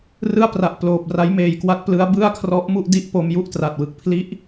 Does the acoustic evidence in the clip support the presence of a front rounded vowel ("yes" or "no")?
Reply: no